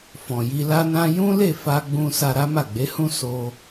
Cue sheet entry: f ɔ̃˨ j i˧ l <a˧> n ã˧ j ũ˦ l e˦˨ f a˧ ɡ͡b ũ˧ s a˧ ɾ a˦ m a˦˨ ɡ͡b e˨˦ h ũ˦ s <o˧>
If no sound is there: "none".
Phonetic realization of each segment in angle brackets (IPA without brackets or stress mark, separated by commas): a˧, o˧